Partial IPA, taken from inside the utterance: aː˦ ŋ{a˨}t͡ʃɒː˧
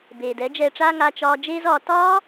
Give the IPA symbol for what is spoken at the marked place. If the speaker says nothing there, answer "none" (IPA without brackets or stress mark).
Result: a˧